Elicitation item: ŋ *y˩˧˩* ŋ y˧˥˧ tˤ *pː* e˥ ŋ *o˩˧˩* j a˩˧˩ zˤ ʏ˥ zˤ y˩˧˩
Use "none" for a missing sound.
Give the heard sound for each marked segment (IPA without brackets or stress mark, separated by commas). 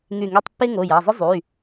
y˧˩, pː, o˩˧˩